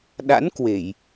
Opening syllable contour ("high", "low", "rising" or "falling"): rising